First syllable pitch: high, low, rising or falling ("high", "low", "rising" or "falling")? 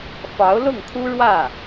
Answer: rising